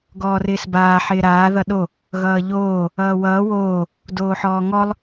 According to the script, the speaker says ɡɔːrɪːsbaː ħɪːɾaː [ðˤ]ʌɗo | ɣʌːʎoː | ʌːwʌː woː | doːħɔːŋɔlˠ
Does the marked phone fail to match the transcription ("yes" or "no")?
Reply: yes